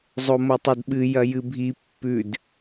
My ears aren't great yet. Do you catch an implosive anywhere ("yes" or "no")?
yes